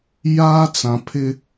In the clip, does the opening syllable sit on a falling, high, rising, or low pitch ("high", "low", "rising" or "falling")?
high